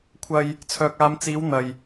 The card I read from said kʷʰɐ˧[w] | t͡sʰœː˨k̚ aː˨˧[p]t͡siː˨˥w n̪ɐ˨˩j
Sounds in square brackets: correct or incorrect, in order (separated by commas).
incorrect, incorrect